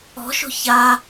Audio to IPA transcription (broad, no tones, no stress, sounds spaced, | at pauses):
ɔ̤ ʃ o̤ ç a